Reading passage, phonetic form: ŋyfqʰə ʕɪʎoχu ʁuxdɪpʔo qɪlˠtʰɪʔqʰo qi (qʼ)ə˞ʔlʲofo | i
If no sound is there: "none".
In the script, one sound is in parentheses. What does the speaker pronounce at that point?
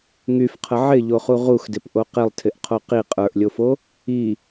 qʼ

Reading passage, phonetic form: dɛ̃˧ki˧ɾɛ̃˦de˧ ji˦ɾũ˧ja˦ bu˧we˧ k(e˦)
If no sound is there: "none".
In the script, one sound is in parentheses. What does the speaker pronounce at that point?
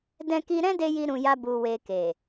e˨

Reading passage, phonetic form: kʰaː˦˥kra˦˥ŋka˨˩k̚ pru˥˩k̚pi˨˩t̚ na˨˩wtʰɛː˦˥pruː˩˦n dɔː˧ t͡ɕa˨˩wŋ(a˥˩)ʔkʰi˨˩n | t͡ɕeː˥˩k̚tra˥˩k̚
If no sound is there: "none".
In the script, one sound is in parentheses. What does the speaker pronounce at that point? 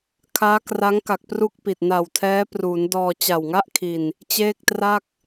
a˥˩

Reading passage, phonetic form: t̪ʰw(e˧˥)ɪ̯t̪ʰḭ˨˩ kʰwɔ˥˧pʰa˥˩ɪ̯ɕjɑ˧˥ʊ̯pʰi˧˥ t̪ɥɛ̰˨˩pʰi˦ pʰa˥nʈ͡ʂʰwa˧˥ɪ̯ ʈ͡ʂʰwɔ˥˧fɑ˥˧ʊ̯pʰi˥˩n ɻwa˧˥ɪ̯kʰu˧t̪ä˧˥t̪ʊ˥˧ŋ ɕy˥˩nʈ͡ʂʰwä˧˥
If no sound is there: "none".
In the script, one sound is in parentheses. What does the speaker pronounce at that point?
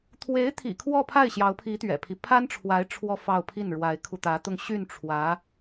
e˧˥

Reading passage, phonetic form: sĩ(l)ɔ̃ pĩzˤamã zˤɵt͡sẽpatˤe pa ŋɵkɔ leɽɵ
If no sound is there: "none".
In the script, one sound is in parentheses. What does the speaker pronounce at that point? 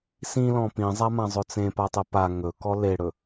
l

